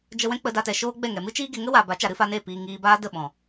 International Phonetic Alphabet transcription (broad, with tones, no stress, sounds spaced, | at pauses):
d͡ʒ ə˧ w ɛ̃˦ k͡p ə˧ d a˧ t ɛ˨ ʃ oː˦ ɡ͡b ɛ˦˨ ŋ ɛ˨ m ɨ˦ t͡ʃ iː˦ ɡ e˧ ŋ ə˦ w a˨ b a˨˦ t͡ʃ a˨ ɾ ɨ˦ f a˧ n eː˦˨ p iː˧ ŋ iː˧ b aː˦ d ə˦˨ ɓ ɔ̃˨